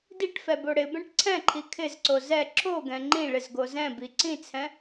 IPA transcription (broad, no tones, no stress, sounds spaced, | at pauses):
d i ʈ f ɛ b o ɽ ɪ b ɛ̃ ʈ ǀʰ ɛ̃ ǃʰ i kʰ ɪ z ǀ o z ɛ ǁ o ɡ ɛ̃ ŋ͡ǃ ĩ ɭ ɪ z ɡ o z ɛ̃ b i ǀ ĩ t͡sʰ ɛ̃